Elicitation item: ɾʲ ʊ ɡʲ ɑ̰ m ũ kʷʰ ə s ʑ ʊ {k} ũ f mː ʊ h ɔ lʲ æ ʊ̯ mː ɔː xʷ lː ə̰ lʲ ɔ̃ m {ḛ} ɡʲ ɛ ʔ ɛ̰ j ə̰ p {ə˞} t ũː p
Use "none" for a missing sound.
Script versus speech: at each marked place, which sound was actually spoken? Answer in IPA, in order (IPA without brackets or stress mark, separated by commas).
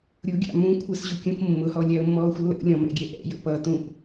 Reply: kʲ, ɛ̰, ʌ